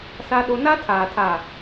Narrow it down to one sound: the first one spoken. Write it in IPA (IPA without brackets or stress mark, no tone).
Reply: s